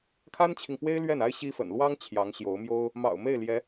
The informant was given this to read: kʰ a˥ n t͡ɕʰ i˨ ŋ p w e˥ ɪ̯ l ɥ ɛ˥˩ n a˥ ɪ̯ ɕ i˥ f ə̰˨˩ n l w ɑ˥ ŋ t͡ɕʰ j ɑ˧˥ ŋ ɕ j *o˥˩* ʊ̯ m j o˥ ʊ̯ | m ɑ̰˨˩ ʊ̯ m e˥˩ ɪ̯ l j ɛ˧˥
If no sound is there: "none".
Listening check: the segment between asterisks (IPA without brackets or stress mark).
o˧˥